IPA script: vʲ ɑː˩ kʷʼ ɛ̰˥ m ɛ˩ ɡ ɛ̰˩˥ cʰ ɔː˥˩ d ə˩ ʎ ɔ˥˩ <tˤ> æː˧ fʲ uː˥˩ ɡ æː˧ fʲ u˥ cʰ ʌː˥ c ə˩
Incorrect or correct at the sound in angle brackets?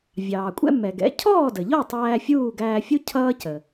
correct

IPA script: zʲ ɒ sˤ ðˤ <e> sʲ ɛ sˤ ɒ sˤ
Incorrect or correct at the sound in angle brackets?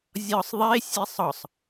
correct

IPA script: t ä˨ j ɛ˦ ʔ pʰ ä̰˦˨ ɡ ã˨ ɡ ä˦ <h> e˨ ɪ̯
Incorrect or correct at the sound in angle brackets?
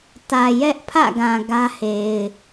correct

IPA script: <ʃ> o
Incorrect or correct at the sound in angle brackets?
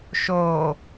correct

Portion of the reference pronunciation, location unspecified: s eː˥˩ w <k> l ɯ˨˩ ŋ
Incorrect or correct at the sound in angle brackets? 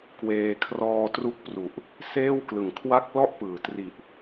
correct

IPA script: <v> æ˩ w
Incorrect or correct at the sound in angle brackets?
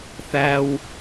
incorrect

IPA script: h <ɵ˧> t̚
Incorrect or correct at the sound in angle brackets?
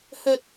correct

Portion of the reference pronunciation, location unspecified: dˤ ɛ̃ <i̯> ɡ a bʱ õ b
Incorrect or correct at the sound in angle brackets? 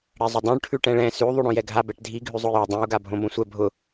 incorrect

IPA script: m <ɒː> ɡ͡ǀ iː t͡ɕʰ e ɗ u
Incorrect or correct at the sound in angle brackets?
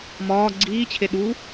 correct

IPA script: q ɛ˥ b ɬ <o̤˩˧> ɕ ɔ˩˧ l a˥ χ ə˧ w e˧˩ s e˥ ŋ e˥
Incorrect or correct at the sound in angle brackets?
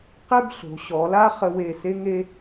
correct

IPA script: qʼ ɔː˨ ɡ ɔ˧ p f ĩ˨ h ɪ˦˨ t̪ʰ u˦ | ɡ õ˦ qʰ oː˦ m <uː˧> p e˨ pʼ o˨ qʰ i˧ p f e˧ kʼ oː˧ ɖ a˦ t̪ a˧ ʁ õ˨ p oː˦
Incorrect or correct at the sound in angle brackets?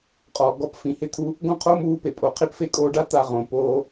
correct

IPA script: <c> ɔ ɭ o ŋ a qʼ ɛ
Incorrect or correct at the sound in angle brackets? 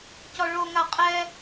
correct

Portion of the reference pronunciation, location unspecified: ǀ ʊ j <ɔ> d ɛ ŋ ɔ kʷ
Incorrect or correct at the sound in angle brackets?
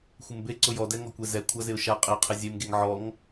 correct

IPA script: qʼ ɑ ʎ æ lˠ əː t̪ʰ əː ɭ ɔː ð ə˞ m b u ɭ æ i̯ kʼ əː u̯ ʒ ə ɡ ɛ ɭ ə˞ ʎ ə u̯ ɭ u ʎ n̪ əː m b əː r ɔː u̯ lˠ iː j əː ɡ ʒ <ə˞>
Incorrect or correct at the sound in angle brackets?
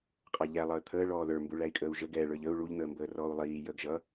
incorrect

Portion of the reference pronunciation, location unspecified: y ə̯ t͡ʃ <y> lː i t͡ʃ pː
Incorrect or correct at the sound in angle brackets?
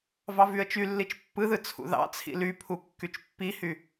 correct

